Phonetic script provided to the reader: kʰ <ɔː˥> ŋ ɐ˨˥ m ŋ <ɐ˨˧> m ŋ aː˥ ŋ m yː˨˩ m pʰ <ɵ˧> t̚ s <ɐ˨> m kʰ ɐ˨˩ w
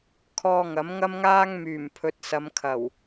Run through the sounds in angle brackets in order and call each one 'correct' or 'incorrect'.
incorrect, incorrect, incorrect, incorrect

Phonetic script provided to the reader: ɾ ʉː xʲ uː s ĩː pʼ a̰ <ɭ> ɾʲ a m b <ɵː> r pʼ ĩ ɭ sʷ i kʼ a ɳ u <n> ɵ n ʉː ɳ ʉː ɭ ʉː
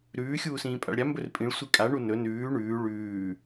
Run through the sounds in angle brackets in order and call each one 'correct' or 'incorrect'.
correct, incorrect, correct

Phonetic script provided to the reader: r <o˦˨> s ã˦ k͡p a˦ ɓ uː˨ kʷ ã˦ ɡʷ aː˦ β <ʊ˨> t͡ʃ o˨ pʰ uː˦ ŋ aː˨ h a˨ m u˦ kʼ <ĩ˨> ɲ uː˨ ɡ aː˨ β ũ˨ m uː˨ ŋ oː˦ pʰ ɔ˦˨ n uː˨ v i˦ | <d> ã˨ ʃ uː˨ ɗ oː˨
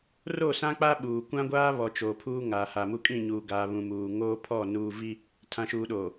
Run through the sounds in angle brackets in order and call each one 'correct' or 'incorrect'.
correct, incorrect, incorrect, incorrect

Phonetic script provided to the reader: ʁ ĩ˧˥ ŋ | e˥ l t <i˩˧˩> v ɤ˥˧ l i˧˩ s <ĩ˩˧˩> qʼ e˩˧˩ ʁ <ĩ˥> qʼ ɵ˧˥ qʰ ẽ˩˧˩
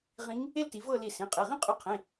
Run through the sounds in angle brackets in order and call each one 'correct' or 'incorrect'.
incorrect, correct, correct

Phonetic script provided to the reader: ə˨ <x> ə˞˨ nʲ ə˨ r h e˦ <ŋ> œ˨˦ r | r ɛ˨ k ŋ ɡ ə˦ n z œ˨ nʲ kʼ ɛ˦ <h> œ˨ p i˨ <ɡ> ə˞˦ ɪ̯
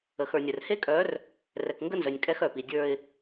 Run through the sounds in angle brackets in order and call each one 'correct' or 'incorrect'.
correct, incorrect, incorrect, incorrect

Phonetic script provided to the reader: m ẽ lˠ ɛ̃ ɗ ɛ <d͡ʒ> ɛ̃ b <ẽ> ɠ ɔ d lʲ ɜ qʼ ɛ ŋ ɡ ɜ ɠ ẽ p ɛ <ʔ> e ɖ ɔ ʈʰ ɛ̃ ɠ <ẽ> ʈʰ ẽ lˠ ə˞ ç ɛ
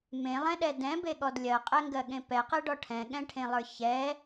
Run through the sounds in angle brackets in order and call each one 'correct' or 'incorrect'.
incorrect, incorrect, incorrect, incorrect

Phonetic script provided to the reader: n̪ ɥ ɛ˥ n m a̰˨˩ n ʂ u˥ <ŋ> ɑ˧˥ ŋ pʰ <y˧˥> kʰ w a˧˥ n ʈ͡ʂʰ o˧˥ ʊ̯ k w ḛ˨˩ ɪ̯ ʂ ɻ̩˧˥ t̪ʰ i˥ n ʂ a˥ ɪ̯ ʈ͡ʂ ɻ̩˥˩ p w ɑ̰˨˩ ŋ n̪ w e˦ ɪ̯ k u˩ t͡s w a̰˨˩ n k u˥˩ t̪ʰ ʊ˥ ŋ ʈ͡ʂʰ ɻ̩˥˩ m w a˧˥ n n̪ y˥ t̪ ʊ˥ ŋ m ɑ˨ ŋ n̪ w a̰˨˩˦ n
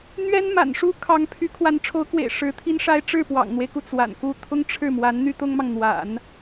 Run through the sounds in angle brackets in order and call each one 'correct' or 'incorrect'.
incorrect, correct

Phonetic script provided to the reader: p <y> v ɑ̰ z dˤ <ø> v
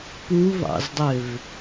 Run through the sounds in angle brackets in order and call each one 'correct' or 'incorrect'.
incorrect, correct

